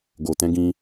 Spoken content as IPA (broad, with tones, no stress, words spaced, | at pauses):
ɡo˨tɛ̃˨˦ɡĩ˧